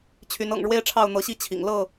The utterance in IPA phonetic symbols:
t͡ɕʰ y˨˦ n ɤ̰˨˩ ŋ ɻ w e˦ ɪ̯ ʈ͡ʂʰ ɑ˥˨ ʊ̯ n̪ ɤ˨˦ ɕ i˥˨ t͡ɕʰ ḭ˨˩ ŋ l ɤ˥˨

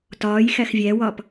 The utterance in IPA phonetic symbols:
t ɒː j x æ x vʲ æ w ɒ p

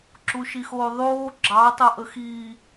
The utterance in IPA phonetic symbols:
ǁ u ʃ i x oː ðˤ oː ɡ͡ǁ ɑ tˤ o ʔ ə x i

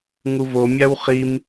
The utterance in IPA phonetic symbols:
ŋ u v o mʲ a w χ i m

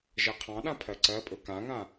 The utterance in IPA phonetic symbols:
ʒ ɜ qʰ ɑ̃ ɗ ã pʰ ɜ ǀ ɜ pʼ ɵ k ã ŋ ã

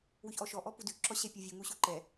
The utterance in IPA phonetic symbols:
w ʉ ç ʔ ɔ ʃ ɔ ʔ ɔ p u d ʉ ǁ ɔ ɕ ɛ pʲ ɔ vʲ u ŋ u ɕ u ǃ ɛ

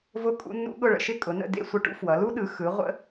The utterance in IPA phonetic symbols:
v ʊ˦ kʼ ṵ˦ nː ṵ˦ ɠ ʊ˦˨ ɭ ə̰˦˨ ʃ ɪ˦ kʼ ʊ˩˧ n ə̰˦˨ d ḛ˦˨ sʷ ə˦˨ ʈ ṵ˦ f w ʌ˩˧ l u˦ ɗ ɯ˩˧ x ɯ˩˧ ʁʷ ə̰˦

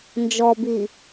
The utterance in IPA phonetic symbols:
n d͡ʒ ɔ b i

